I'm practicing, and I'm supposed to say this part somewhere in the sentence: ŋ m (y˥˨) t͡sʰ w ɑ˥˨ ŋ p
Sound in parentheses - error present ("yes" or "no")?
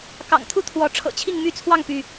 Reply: no